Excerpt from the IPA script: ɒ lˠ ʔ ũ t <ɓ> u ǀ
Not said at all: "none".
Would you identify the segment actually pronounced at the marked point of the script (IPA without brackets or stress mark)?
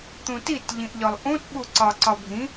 ɓ